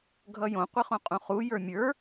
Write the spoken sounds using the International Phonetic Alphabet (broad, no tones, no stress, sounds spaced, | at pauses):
ɡʱ ʌ j õ qʷ ɘ χ õ qʼ ũ χ u j ə˞ mʲ ə˞